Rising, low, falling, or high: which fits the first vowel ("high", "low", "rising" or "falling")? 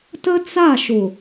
high